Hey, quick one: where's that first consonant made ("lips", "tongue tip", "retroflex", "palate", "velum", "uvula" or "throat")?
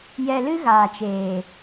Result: palate